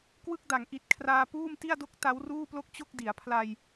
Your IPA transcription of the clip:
k w ɯ˥˩ k̚ d a˩˦ ŋ ʔ i˨˩ t̚ kʰ r aː˧ p uː˥˩ m t i˥˩ a̯ d o˥˩ k̚ t a˦˥ w r uː˥˩ p l o˥˩ k̚ t͡ɕ o˥˩ k̚ d i˩˦ a̯ pʰ l a˧ j

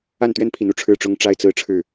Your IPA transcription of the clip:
a˥˨ n t̪ ɥ ɛ˦ n pʰ i˨˦ n u˥˨ ʈ͡ʂʰ ɻ̩˥˨ ʈ͡ʂ ʊ˦ ŋ ʈ͡ʂ a˦ ɪ̯ t͡s ɹ̩˥˨ ʈ͡ʂʰ ɻ̩˥˨

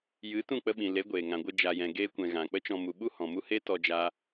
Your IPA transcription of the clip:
j ɨ˨˦ t ũ˦˨ k͡p ə˧ ɓ ĩ˨ l e˨˦ ɡʷ eː˨ ŋ ã˨ ɡʷ ɨ˧ d͡ʒ a˧ j ɛ̃˧ ɡ eː˧ kʷ ɛ̃˨ ɣ ã˨ k͡p ə˦ t͡ʃ ɔ̃˧ m u˨ ɓ u˦ h ɔ̃˨ m u˦ h e˦ t ɔ˧ d͡ʒ a˦

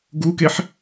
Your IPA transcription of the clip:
ɡ u k e ħ

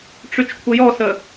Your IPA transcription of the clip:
ʈ͡ʂ y t͡ʃ kʷʰ ə j ɔ s ə

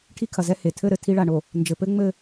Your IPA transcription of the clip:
ʈʰ i˦ kʰ ɐ˨ z ɛ˦ h e˨ tʰ ɘ˦˨ ɾ ɘ˨ tʰ i˦ ɭ a˨ ɳ o˨ | n d͡ʒ ɘ˨ p ɘ˦ ŋ͡m ɘ˦˨

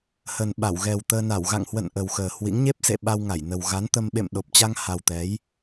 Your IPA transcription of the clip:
h ə˨˩ n ɓ a˧˩ w ɣ ɛ˨˩ w t̪ əː˧ n a˧˩ w ɣ a̰˧˨ ŋ h w ə̰˧˨ n ʔ ə˨˩ w x əː˨˩ h w ḭ˧˥ ŋ ɲ e˦˥ p̚ s ḛ˧˨ ɓ a˧ w ŋ a˧˩ j n ə˨˩ w ɣ a˨˦ n t̪ ə˧ m ɓ ḛ˧˨ m ɗ o˨˩ p̚ t͡ɕ a˧ ŋ h a˨˩ w t̪ ɛ˨˦ j

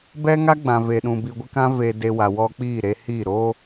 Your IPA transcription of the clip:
b ɛ˦ ŋ a˦ ɡ͡b ã˨ v eː˨ ɗ ũ˨ b i˨ ɡʷ ɪ˦ k ã˦ v e˨ d e˨ w a˨ w ɔ˦ k͡p iː˦˨ ɾ e˦ h i˦˨ ɾ oː˦

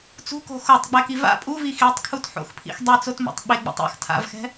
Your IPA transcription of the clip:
t͡s ṳ k o̤ x o tˤ ɡ͡b ɛ k i v a̰ pʼ u v i x i tˤ kʰ u t ħ o̰ x pʰ ḭ x dˤ e t͡s o t m o̰ tˤ ɓ e ɡ͡b ḭ tˤ a̰ x tʰ a̰ v x ɛ̤

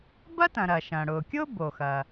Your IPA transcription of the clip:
b ɐ˥ t ɐ̃˩ ɾ ɐː˩ ʃ ɐ̃ː˩ ɽ ʊː˩ kʲ ʊː˥ b o˩ x ɐː˩

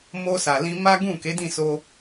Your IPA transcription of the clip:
m o˧ s a˨ l ĩ˧ m a˦ ɡ ũ˦˨ k e˨˦ d ĩ˦˨ s o˧

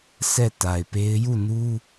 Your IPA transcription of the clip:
sʰ ɛ˦˨ t a˨ ɪ̯ p e˦ ɪ̯ j u˦˨ n u˦

